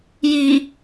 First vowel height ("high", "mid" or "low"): high